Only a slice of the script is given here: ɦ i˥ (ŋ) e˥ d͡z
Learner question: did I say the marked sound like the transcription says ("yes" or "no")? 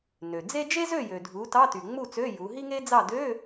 yes